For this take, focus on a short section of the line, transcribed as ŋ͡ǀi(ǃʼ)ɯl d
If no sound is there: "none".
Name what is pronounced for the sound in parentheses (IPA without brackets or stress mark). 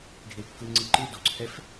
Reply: ǃ